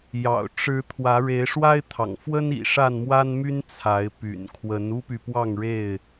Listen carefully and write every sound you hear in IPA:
j ɑ̰˨˩ ʊ̯ ʈ͡ʂ ɻ̩˨˦ t̪ʰ w ä˨˦ ɻ e˨˦ ɪ̯ ʂ w a˦ ɪ̯ t̪ʰ ɑ̰˨˩ ŋ f w ə˦ n ḭ˨˩ ʂ a˥˨ n m w a˦ n m y˦ n t͡sʰ a˨˦ ɪ̯ p y̰˨˩ n kʰ w ə˨˦ n u˦ p y˨ p w ɑ˥˨ ŋ ɻ e˥˨ ɪ̯

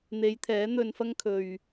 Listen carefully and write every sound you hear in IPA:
n̪ e˨˧ j t̪ʰ ɛː˨˥ n̪ ɵ˧ n f ɐ˥ ŋ kʰ ɵ˨ ɥ

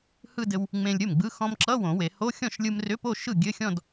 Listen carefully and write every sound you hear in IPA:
h ɯ˥˧ d ɘ˧ w | ŋ͡m ẽ˧ lʲ ɾʲ o˥˩ m ɡ͡b ɯ˧˥˧ x ɔ̃˧ m ǁ ʌ˧˥˧ w õ˨˩˦ w e˨˩˦ h o˧˥˧ xʲ ɔ̃˥˩ ʃ lʲ ɯ˧ m r ʏ˧˥˧ p o˥˧ ʃ ɯ˥˩ ɡʲ ɘ˧˥˧ xʲ ɔ̃˥˧ d

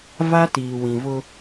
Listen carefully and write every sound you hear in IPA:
v a˦ t iː˨ w ĩ˨ v ʊ˦

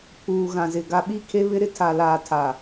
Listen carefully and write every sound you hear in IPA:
pʰ uː˨ ɣ ã˨ z ɪ˨ ɡ a˨ ɓ i˦˨ kʰ e˦ β ɪ˦ ɾ ɪ˦ tʰ a˨ l aː˨ tʰ a˨

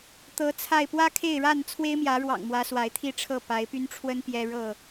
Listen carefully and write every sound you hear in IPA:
t̪ ɤ˨˦ t͡sʰ a˥˨ ɪ̯ p w ä˦ kʰ e˥˨ ɪ̯ ɻ a˥˨ n t͡sʰ w e˦ ɪ̯ m j ä˨˦ ɻ w ɑ̰˨˩ ŋ m w ä˨˦ s w a˨˦ ɪ̯ t̪ʰ i˥˨ ʈ͡ʂʰ ɤ˥˨ p a˨˦ ɪ̯ p y˦ n ʈ͡ʂʰ w ə˦ n p j ɛ˦ ɻ ɤ˥˨

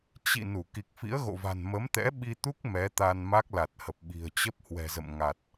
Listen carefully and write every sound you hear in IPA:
t͡ɕ ḭ˧˨ n u˧˩ k i˨˩ k̚ f ḭ˧˥ ə̯ ɣ o̰˧˨ v a̤˨˩ n m ə˨˦ m t̪ ɛ̰˧˥ ɓ i˧ t̪ u˦˥ k̚ m ɛ˨˦ t̪ a˧ n m a˦˥ k̚ l a˨˩ t̚ h ə˨˩ p̚ ɓ i̤˨˩ ə̯ t͡ɕ ə˦˥ p̚ h w ɛ̤˨˩ z ə̰˧˨ m ŋ a˨˩ t̚

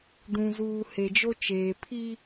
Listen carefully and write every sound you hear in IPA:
d ũ˨ z uː˨ h e˨ d͡ʒ o˦ t͡ʃ eː˨ pʰ i˦

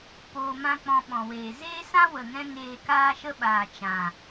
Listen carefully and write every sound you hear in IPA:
p oː˧ m ã˦ k͡p ɔ̃˧ ɓ ɔ̃˨ w eː˨ z eː˦ s ã˦ w ə˨ ŋ ɛ̃˧ ŋ eː˧ k aː˦ ʃ ə˦ ɓ aː˨ t͡ʃ ã˨

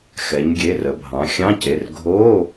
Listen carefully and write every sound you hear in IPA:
x ɛ˩˧ ɲ ɡʲ e˩˧˩ r ə˩˧ bʱ ɑ̃˩˧ xʲ ɑ̃˧˥˧ c e˩˧˩ r ɡʱ o˧˥˧

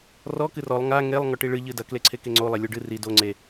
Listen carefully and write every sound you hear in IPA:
r ɔ k ɨ r ɔ lˠ ŋ a ŋ e lˠ ŋ ɔ ʈ i ɭ ɨ ʎ ɨ d ɐ k l e ǀʰ e k e ŋ͡ǀ o lˠ e lʲ o ɖ ɨ r i d o ŋ͡ǀ e

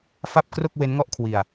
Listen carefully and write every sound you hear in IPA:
f a˥˩ p̚ k r o˥˩ k̚ w e˦˥ n ŋ ɔ˥˩ ʔ kʰ w i˧ a̯

